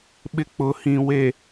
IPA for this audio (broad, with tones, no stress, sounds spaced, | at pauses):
ɓ ɪ˦ k͡p ʊ˨˦ h ĩ˨ w e˨